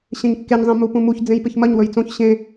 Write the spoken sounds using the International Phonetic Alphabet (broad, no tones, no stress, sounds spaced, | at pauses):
ɕ ẽ ɲ kː e ɲ zˤ ẽ m u p ũ m u ç d͡z ẽ j p ɨ ç m ɐ ɲ w ɵ j t͡s õ ç ɕ ẽ